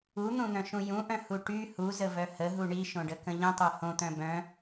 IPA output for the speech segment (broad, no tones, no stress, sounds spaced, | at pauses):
u n̪ ũ n̪ œ̃ ʃ ũ j ũ ʔ œ̃ h u ʈ y h u z ə v œ h ə ɦ u ɳ i ʃ õ ɖ ə k ə̃ ʎ ə̃ tˤ œ h õ t̪ œ̃ b œ̃